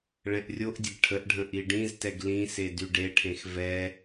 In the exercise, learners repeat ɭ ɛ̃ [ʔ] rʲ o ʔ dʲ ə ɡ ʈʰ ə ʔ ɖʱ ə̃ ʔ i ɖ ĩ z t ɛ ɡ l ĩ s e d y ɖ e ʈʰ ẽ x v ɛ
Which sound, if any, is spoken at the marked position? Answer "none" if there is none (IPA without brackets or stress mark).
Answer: ʔ